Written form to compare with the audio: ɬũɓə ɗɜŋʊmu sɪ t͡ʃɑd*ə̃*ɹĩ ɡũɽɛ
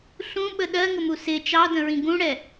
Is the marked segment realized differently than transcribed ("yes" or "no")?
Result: no